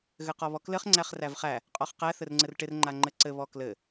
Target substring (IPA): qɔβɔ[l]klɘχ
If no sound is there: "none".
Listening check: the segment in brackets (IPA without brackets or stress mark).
none